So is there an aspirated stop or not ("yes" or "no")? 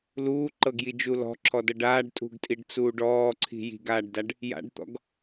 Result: yes